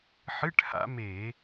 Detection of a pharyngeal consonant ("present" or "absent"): present